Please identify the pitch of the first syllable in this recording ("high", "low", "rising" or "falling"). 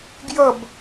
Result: falling